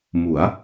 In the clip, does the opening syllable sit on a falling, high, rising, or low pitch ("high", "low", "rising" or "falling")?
rising